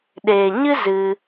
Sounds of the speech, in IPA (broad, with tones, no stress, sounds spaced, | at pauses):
ɗ eː˨ ɲ ɨ˦ z ɨ˧